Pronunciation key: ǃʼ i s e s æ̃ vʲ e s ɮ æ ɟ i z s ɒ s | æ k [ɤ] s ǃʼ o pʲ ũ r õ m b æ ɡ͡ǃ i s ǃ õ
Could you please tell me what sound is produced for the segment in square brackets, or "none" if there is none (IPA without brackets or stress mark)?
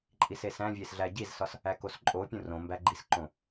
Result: o